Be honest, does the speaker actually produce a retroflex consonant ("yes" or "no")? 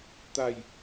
no